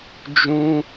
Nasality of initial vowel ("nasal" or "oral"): nasal